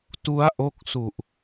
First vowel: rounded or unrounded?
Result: rounded